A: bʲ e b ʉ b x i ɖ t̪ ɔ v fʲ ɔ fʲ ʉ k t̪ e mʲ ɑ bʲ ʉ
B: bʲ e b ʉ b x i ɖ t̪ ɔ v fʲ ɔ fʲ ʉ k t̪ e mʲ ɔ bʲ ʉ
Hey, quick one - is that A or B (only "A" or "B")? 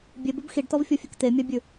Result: A